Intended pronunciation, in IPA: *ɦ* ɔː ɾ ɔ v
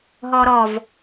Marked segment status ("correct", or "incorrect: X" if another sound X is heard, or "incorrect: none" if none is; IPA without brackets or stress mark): correct